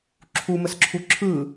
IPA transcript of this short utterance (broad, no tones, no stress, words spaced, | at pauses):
ǁʰuməsǁʰu ǁʰɯ